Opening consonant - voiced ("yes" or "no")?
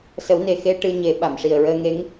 no